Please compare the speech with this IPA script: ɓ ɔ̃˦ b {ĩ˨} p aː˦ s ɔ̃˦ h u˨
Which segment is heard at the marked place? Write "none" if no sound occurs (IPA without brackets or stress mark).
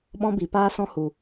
i˨